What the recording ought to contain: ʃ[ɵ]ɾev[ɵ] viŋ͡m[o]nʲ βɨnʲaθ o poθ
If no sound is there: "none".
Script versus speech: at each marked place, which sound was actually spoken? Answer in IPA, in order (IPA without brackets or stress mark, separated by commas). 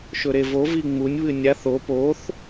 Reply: ɵ, o, u